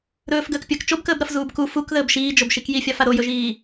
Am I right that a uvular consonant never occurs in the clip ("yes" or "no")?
yes